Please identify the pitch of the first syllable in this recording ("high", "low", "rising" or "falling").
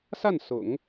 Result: falling